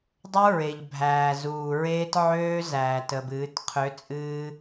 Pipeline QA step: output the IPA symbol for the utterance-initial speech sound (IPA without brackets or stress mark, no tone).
dˤ